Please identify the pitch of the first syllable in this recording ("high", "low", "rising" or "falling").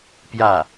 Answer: falling